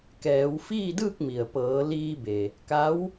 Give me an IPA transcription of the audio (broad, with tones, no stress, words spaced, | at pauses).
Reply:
kɛː˩˧w fiː˥˨dɯː˥˨k̚mi˩ə̯ pɤː˩˧liː˧be˩ | ka˧˥w